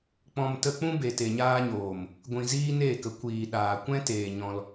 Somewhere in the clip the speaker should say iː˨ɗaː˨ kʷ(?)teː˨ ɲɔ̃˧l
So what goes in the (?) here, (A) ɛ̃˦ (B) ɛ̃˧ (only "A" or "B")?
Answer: A